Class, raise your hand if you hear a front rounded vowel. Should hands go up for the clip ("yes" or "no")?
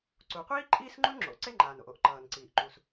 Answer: no